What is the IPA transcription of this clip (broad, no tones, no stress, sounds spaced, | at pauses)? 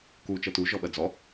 k u t͡ʃ ɤ t u ʒ ɔ ɓ ɜ d͡z ɔ